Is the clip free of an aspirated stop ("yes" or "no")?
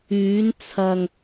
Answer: no